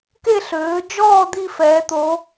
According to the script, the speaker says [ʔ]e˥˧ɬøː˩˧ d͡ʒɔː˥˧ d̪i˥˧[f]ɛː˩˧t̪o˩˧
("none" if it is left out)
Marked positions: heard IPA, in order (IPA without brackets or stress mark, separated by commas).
k, f